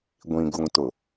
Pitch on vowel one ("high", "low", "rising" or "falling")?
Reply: low